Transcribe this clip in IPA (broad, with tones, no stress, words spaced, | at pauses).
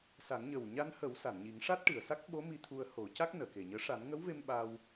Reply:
sa˨˩˦ŋɲə˨˩w ɲa˧nhə˨˩˦w sa˨˩˨nɲi˨˩˦ŋʂa˦˥t̚ʈɨ˨˩˨ə̯ sa˦˥k̚ɓo˧˥ mi˧t̪ʰu˧ə̯ho˨˩˦ca˦˥k̚ nəː˨˩˨ke˨˩ɲəː˧˥ ʂa˨˩˦nŋə˧˥wve˧m ɓa˧w